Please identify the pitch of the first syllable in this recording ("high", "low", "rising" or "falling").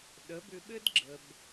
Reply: rising